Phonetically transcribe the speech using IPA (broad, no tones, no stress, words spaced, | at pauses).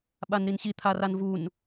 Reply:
ɓanɾinɕi t̪ʰaranvun